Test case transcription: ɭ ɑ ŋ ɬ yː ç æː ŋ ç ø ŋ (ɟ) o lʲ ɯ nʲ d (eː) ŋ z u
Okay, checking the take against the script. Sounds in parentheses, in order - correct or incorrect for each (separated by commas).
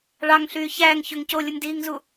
incorrect, incorrect